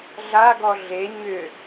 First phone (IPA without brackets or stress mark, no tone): ɮ